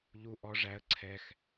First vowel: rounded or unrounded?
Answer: rounded